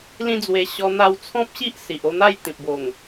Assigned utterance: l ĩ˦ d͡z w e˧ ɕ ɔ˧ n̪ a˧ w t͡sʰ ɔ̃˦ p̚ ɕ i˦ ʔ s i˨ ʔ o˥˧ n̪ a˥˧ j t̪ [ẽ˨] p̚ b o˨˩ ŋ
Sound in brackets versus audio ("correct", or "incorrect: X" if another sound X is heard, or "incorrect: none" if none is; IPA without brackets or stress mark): incorrect: ĩ˨